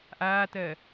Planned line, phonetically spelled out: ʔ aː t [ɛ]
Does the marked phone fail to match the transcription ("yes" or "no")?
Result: yes